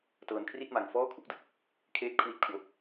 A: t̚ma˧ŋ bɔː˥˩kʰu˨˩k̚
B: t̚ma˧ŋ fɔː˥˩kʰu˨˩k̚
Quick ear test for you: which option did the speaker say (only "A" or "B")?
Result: B